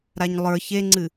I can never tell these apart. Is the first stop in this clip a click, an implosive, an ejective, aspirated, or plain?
click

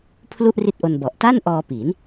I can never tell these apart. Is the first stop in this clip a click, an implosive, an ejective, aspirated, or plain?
aspirated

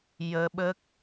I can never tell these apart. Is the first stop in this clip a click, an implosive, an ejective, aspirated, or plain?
implosive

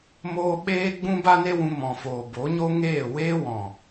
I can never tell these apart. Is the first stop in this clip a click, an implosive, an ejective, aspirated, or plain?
implosive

